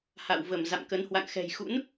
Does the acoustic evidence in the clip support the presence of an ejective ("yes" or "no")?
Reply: no